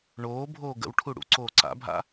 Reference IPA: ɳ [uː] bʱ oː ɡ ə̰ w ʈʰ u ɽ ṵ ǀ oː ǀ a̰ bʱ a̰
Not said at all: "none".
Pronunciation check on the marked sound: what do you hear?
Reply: oː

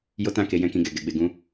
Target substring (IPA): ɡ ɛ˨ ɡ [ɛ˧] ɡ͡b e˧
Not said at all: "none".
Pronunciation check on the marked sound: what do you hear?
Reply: ɛ˧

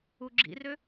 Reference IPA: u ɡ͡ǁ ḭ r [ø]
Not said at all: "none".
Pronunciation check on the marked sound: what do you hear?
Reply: ø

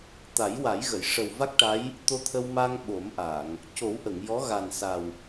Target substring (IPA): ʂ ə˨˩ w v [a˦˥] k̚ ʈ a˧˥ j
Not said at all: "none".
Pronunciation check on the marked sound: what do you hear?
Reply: a˦˥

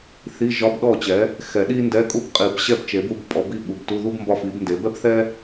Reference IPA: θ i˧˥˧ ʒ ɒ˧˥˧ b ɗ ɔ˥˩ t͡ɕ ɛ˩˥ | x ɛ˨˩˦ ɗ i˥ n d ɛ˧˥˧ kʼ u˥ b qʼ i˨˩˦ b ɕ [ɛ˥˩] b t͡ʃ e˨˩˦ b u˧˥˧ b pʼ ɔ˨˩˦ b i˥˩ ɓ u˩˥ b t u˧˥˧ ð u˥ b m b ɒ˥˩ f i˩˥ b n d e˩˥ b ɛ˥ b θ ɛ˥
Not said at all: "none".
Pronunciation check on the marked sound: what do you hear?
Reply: ɛ˥˩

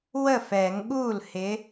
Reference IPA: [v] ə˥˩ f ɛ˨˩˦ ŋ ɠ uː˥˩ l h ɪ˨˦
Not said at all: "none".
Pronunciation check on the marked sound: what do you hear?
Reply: w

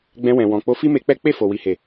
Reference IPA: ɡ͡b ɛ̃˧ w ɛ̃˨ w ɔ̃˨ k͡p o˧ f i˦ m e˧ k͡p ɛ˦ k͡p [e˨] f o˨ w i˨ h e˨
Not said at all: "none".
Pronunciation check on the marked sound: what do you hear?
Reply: e˦˨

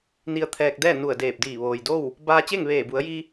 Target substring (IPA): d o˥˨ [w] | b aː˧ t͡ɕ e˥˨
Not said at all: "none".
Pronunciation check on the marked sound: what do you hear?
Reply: w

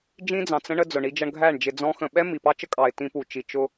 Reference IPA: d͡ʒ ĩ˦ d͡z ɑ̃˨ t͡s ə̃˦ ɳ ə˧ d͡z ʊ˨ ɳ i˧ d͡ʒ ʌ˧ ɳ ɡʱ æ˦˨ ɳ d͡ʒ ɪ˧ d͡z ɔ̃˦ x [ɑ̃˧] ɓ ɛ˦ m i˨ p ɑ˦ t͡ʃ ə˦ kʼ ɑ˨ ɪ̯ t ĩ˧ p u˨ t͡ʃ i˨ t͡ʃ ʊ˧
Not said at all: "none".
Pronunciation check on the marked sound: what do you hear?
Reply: ə̃˧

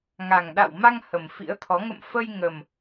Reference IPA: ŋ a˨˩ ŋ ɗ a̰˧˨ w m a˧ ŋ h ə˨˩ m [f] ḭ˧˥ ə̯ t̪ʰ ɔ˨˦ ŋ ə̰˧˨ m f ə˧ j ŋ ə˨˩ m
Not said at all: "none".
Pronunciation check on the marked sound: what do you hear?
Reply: f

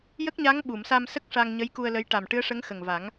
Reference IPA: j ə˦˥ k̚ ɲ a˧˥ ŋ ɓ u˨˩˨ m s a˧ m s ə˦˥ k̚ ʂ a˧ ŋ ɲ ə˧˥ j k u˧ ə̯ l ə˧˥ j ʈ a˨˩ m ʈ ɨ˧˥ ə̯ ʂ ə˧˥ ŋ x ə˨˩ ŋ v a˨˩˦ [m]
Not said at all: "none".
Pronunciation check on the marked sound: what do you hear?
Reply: ŋ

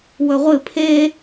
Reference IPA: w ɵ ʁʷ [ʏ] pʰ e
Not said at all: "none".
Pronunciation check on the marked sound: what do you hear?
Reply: ɨ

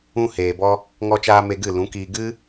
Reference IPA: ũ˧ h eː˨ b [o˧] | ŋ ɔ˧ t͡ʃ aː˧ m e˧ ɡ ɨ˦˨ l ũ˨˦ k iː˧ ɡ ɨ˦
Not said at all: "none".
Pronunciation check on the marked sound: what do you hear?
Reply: ɔ˧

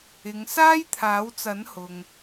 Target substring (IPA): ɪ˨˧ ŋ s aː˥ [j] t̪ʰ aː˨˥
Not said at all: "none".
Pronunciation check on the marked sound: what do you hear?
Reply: j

